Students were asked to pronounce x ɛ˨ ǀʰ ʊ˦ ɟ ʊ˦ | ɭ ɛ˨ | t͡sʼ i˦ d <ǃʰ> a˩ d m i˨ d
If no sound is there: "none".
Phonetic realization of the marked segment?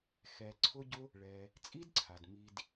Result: ǀʰ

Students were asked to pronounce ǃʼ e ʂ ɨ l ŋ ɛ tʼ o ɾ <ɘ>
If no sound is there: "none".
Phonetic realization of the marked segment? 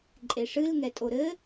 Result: ɘ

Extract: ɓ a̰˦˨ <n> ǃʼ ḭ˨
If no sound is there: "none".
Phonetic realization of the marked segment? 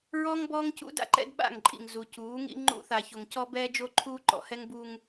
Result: ŋ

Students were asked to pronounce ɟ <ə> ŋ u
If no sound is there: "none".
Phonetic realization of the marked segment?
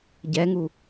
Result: ɛ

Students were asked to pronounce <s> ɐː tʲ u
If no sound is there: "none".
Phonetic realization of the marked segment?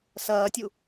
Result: s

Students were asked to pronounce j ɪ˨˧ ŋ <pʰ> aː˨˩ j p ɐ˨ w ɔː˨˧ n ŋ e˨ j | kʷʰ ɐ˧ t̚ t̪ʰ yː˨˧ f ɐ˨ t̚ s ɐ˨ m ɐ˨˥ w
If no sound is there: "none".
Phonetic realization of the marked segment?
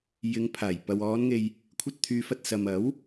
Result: pʰ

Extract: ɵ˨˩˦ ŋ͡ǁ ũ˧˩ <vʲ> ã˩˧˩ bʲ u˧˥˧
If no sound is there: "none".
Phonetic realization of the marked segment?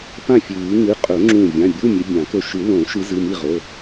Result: vʲ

